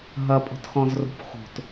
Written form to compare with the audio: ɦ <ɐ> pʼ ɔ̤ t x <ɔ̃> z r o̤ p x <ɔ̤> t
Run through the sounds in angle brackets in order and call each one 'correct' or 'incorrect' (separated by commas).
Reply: correct, correct, incorrect